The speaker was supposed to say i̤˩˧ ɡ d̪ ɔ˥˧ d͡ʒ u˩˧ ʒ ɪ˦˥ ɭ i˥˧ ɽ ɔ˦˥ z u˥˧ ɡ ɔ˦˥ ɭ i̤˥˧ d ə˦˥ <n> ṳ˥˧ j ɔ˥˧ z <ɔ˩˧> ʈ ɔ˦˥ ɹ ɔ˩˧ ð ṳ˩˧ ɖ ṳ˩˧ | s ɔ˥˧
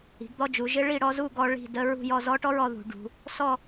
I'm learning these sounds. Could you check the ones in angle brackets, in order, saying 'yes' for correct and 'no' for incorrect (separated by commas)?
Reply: no, no